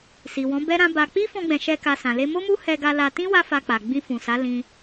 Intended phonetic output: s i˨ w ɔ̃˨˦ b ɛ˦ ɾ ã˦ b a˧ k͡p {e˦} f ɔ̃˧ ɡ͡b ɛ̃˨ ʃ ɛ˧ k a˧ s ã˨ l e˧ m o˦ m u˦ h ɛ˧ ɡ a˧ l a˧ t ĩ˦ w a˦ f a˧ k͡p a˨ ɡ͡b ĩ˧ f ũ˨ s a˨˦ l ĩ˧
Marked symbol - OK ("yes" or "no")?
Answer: no